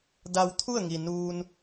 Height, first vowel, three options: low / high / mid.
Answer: low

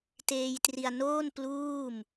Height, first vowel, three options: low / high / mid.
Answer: mid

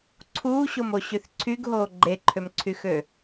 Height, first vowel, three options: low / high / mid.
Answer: high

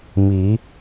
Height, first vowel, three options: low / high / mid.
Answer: high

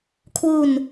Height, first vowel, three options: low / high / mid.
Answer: high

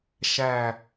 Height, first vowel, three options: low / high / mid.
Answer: low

